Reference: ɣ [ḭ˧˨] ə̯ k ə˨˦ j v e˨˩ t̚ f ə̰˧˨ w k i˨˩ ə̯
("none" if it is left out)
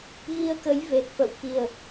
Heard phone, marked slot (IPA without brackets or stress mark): i˧